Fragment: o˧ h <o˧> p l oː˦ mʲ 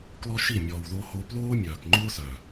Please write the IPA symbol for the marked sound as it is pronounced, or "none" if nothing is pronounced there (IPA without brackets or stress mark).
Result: o˧